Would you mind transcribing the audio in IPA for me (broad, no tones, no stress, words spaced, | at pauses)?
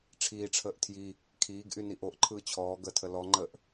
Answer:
ʈ͡ʂʰiːʈ͡ʂʰəːʔ tʰji | kʰiːɡʔy niʔoʔǃʰɯː t͡ɕʰɔː ɡətʰə lɔŋ͡ǃəːʔ